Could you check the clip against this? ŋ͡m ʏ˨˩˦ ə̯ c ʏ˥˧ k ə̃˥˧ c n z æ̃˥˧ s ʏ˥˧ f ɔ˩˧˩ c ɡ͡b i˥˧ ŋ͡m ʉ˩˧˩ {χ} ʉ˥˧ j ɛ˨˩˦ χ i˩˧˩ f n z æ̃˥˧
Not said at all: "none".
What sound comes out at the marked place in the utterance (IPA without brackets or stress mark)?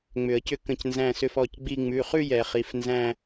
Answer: χ